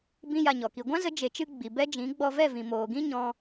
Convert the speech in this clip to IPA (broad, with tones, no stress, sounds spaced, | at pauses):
b ĩ˦ j a˧ ɲ ɔ˨ k i˧ ɡʷ ã˦ z ə˨˦ d͡ʒ e˨ t͡ʃ ɨ˧ ɡ͡b i˨ b ɛ˦ d͡ʒ ĩ˨˦ ɡ͡b ɔ˧ v ɛ˦˨ v ĩ˨ m oː˨ ɡ ĩ˦ ɲ ɔ̃˧